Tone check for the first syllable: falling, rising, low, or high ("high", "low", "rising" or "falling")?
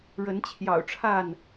rising